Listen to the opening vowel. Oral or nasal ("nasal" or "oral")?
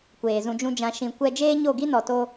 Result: oral